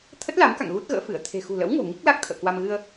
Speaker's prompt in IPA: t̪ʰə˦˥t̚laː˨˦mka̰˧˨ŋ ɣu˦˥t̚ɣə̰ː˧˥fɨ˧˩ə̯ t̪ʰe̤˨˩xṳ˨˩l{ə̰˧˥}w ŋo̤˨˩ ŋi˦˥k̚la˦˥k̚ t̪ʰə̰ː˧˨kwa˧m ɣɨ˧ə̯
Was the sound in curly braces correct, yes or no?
yes